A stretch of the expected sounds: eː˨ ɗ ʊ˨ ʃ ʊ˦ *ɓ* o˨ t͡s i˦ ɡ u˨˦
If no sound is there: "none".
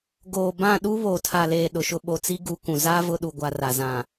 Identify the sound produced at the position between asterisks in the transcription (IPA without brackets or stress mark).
ɓ